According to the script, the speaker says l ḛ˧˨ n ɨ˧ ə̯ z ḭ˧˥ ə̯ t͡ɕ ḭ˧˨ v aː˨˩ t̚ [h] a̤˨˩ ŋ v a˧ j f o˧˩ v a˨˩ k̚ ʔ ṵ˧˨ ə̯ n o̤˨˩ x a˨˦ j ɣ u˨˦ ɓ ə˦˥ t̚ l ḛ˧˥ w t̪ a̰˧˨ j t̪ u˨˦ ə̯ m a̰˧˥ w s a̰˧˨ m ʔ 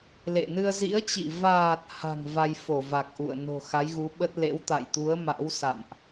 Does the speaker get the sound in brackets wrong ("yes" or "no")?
no